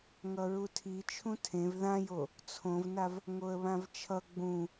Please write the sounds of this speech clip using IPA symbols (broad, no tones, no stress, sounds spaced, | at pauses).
ŋ ʌ ɹ u tʰ i t͡ʃʰ ũ tʰ ẽ v ð ã j o | t͡sʰ õ v n a v | ŋ o ə̯ β ã v t͡ʃʰ ʌ ɡ͡b ũ